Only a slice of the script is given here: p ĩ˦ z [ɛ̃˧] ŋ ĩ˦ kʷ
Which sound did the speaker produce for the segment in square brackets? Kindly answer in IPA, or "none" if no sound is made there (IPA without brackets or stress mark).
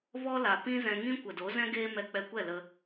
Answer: ɛ̃˧